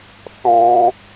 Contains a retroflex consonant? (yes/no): no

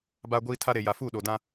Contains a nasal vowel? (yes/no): yes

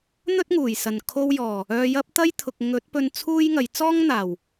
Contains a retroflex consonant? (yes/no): no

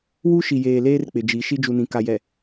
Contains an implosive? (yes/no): no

